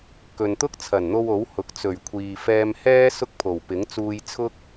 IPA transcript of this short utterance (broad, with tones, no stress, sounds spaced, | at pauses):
k ɵ˨ n t̪ ʊ˥ k̚ t͡sʰ ɐ˨˩ n n̪ o˧ w o˨˥ w h ʊ˨ k̚ t͡s ɵ˨˩ ɥ kʷʰ iː˨ f ɛː˧ m h ɛː˥ s ʊ˥ k̚ pʰ o˨˩ w p ɪ˨˥ ŋ t͡s uː˧ j t͡sʰ ʊ˥ k̚